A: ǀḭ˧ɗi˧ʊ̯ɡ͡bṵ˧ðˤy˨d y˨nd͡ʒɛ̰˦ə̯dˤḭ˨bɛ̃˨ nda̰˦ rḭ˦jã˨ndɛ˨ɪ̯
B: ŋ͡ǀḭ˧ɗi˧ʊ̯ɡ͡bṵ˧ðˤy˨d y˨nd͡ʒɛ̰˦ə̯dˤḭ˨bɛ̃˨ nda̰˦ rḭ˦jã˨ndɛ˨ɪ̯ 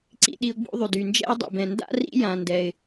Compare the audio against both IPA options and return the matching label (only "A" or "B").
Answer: A